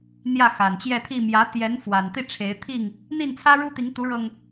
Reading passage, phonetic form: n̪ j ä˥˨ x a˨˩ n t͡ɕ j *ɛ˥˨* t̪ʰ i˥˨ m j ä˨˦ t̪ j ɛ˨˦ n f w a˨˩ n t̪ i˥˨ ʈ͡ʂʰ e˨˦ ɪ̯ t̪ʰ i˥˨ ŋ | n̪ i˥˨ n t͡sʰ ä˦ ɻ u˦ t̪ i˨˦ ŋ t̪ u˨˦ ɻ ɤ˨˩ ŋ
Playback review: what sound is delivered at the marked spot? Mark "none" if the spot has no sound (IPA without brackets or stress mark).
ɛ˥˨